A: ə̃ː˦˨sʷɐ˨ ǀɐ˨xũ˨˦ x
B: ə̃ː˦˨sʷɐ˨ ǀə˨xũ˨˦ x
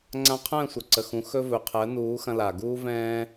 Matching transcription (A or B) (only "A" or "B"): B